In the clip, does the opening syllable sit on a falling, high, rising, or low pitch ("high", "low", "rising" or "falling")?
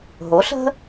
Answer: rising